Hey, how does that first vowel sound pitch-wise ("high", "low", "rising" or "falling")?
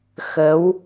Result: rising